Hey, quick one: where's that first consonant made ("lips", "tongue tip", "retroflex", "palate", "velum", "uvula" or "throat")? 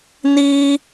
tongue tip